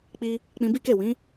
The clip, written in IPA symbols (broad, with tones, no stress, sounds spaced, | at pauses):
k͡p i˧ | k͡p ĩ˧ b i˦ k e˦˨ w ĩ˨˦